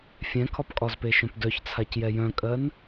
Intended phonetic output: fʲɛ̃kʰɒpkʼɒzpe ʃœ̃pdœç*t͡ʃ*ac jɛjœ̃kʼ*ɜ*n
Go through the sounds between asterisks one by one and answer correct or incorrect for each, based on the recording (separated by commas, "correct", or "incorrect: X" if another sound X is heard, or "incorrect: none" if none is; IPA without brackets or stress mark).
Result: incorrect: t͡sʰ, correct